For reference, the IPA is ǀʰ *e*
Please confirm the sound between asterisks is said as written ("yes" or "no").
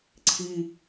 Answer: no